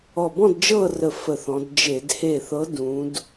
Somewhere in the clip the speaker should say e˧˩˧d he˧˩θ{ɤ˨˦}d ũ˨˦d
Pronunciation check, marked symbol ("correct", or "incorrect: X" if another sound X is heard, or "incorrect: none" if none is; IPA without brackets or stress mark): correct